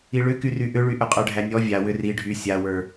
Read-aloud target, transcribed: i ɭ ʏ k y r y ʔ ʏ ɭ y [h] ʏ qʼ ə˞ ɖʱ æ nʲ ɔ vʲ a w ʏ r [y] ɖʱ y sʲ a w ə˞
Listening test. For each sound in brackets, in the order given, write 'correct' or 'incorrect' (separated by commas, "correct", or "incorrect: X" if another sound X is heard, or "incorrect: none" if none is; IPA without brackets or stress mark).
incorrect: ʔ, incorrect: i